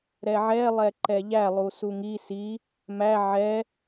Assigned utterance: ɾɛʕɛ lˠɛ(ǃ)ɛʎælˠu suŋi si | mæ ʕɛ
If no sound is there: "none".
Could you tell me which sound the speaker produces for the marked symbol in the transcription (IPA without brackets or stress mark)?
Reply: ǃ